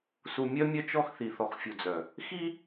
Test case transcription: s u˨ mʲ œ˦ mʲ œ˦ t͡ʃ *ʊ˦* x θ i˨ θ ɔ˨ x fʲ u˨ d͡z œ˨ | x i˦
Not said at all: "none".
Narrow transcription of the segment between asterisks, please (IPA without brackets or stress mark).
ɔ˦